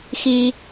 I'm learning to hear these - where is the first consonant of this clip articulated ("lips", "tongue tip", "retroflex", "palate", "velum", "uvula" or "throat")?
velum